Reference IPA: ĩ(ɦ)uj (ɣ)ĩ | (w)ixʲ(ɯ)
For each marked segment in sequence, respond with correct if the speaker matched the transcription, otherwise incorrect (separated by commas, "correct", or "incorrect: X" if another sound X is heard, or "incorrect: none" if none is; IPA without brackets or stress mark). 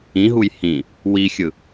correct, incorrect: h, correct, correct